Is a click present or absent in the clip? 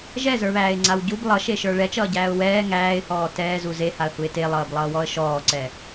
present